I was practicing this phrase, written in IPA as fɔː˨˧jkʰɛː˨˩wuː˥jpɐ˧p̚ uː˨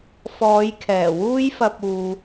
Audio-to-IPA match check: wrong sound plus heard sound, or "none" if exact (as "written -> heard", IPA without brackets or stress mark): p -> f